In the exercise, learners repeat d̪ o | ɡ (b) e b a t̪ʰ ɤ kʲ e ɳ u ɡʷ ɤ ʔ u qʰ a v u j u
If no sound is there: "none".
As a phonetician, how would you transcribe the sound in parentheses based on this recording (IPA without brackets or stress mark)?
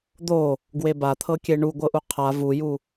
w